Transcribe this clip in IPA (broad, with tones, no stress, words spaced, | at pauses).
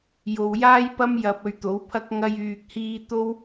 jo˨wjaː˥jpɐ˥m jɐ˧p̚ɵ˧ɥt̪o˨˥wpʰɐ˥k̚ ŋɐ˥j yː˧k̚hiː˥ t̪o˥w